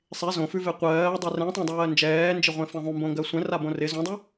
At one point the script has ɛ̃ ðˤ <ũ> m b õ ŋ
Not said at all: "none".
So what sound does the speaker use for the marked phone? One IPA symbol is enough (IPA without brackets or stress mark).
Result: ũ